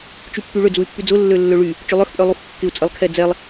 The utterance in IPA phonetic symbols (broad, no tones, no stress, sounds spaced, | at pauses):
t͡ʃ y pː y ɭ ʏ d͡z u y̯ pː y d͡z ʊ lː ø lː ø ɭ y | t͡ʃ ʏ lˠ œ x pʼ œ lˠ u x kː ɪ u̯ t͡sʼ ə lˠ kʰ ɛ d͡z ɛ lˠ